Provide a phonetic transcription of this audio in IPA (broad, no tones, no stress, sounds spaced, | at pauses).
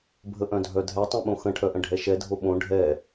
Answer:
bʱ ə ʔ œ̃ dʱ œ dʱ ɛ tˤ ɛ̃ ɓ õ x ə̃ ʈʰ œ ʔ ə̃ ɖʱ ɛ ʃ ɛ dʱ o ɓ õ ɖʱ ɛ